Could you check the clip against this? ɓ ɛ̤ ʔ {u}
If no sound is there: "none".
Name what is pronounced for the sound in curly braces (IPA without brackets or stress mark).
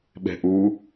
u